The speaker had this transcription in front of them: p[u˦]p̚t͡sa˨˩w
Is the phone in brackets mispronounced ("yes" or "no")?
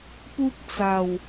no